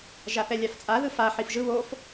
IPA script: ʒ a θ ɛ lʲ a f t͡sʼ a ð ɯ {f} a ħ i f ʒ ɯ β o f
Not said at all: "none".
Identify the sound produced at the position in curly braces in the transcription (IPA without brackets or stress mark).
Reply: f